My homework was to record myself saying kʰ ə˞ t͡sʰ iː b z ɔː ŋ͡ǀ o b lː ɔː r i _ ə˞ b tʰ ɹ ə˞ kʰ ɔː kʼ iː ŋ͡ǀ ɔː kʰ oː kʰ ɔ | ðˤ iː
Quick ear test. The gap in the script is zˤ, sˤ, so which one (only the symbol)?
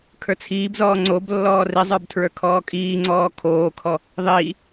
zˤ